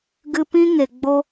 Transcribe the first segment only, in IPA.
ɡ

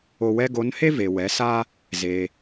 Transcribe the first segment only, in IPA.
o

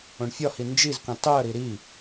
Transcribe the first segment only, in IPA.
õ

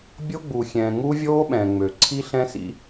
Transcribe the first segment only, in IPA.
bʲ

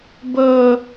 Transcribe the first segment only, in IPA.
b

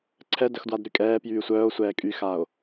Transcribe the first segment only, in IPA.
ǀʰ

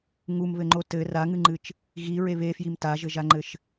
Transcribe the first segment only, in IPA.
ŋ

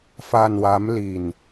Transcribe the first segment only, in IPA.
f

